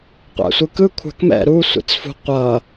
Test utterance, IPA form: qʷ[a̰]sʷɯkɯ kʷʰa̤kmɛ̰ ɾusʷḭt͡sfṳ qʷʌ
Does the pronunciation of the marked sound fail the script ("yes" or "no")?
no